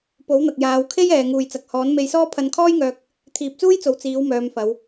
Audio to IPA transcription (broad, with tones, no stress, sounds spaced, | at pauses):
p o˨˥ w n̪ ɐ˨ k̚ j aː˨˧ w kʰ e˥ j ɛː˨ ŋ uː˨ j t͡s ɐ˨ k̚ h ɔː˨˥ n m e˧ j s ɔː˥ pʰ ɐ˧ n kʰ ɔː˥ j ŋ œː˧ k̚ | t̪ʰ iː˨ p̚ t͡s uː˥ j t͡s o˨ w t͡s iː˨˥ w m œː˨˧ m f ɐ˨˧ w